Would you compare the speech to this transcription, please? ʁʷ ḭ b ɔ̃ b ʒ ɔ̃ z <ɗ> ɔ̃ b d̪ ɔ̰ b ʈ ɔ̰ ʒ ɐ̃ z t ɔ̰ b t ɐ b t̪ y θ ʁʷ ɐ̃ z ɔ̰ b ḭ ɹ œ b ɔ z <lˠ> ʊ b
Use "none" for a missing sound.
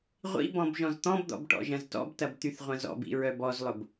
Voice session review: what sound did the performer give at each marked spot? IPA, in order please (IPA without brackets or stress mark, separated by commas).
t̪, lˠ